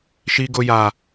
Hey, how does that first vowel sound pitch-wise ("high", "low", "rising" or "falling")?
high